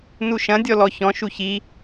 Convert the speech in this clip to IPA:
n u ʃ ɐ̃ dʲ ɔ l ɔ ç ɔ̃ ʃ u ç i

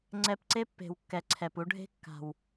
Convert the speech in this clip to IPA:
ŋ͡ǀ ɛ˧ p ǀ e˦ pː e̤˨ w kː ɛ˨ ǀʰ ɛ˨ p u˧ ɖʱ e̤˦ kː a̤˨ w

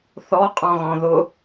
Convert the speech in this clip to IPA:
θ ɔ qʼ ɔ̃ ɣ ɔ̃ ð ʊ

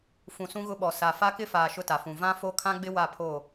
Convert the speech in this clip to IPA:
f ũ˨ s ũ˦ ɣ ʊ˦ ɓ ɔ˨ s a˨ f a˦ k ɪ˦ f aː˨ ʃ ʊ˦ t a˨ f ũ˨ v ã˦ f o˦ kʰ ã˦ ɡ͡b ɪ˦ w a˦˨ pʰ o˦˨

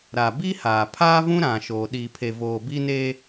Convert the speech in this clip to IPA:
ɾ a˨ b i˦ h aː˨ pʰ aː˦ v ũ˦ ɾ ã˨ ʃ oː˨ ɗ iː˨ pʰ e˨ v oː˨ b i˦ n e˦

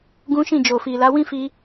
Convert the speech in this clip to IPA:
ɡ ũ˦ ʃ ĩ˦˨ d͡ʒ o˨ f i˨ l a˨˦ w ĩ˦ f i˧

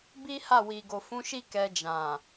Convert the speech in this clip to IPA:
b i˦ h a˦˨ w i˨ ɡ o˨ f ũ˨˦ ʃ i˦˨ k ɛ˧ d͡ʒ ã˨

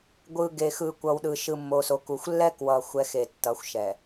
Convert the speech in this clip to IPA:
ɡʷ ɯ˨ ɡ e˨ x ɯ˨ kʷ ʌ˨ w ɗ ɯ˨ ʃ ɯ˨ mː o˨ s o˨ k u˨ xʷ lː ɛ˦ k w ʌ˨ xʷ ɛ˨˦ x e˨ tː ʌ˨˦ xʷ ʃ ɛ˨

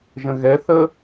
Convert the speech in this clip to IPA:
ʒ ə̃ ɣ ɛ θ ə

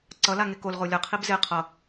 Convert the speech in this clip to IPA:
ǀ ʌ l a ŋ e k o l ʁ o lʲ ʌ qʰ i b z e qʰ ʌ

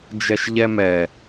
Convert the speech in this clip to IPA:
d͡ʒ ɛ ʃ ʎ ɛ m ɛ

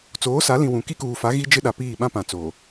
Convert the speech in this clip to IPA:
t͡s oː˨˦ s a˨˦ l ĩ˨ w ũ˨ k i˦ k uː˨ f a˨˦ ɣ i˦ d͡ʒ ɪ˦ ɗ a˨ p iː˦˨ ɓ ã˦ p ã˨ t͡s oː˨

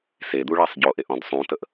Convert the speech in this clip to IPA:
s e d̪ u ɭ æ sˤ ɟ o ʔ e ʔ ɔ̃ d sˤ ũ t ə ʔ

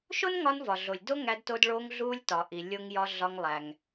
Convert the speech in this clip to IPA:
ʃ o˥ n ŋ ɒ˧ n v ɒ˩ ɮ o˩ lʲ d o˥ ŋ æ˧ d t o˧ d ɭ o˧ ŋ ɮ u˧ lʲ t ɒ˩ ʔ i˩ lʲ o˧ ŋ j ɒ˧ ɮ ɒ˧ ŋ lˠ æ˩ ŋ

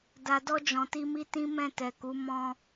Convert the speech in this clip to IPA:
d a˨ d ɔ˧ d͡ʒ ɔ̃˨ t i˧ m i˦ t ĩ˦ m ɛ̃˦˨ t ɛ˨ k u˨˦ m ɔ̃˧

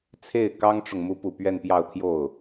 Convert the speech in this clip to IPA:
t͡sʰ e˥˩ ɪ̯ k ɑ˥ ŋ ʈ͡ʂ ʊ˨ ŋ m u˧˥ p u˨˩ p ɥ ɛ˥˧ n p j ɑ˥˧ ʊ̯ t̪ʰ j o˥˩ ʊ̯

